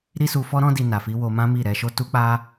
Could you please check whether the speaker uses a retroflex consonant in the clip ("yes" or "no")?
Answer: no